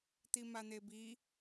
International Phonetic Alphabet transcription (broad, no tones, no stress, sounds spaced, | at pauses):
t̪ i m a n̪ e b i